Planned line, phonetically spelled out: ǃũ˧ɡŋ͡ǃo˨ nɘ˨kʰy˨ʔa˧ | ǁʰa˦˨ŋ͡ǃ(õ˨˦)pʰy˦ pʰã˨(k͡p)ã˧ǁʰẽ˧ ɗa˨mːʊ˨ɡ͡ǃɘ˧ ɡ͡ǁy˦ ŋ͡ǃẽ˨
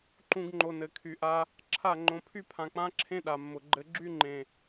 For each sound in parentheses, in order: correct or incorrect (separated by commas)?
incorrect, correct